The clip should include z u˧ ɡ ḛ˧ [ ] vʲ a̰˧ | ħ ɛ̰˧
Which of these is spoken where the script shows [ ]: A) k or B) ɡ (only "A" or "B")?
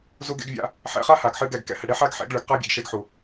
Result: B